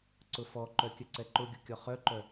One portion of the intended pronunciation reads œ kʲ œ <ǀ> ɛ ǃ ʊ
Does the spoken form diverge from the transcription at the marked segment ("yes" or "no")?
no